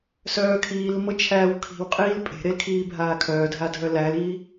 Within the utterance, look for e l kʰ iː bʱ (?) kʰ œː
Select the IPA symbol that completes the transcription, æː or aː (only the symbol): aː